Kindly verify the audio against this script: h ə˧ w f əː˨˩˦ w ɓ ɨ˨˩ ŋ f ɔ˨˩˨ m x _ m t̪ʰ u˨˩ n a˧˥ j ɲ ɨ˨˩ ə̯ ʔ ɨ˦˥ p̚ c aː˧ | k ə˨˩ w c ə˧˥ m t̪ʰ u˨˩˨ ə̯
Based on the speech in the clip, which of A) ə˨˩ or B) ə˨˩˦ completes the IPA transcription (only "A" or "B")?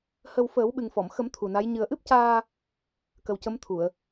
B